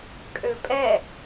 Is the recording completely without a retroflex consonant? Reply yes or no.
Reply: yes